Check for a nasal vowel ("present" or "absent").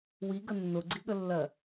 absent